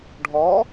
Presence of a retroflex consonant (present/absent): present